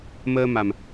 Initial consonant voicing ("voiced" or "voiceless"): voiced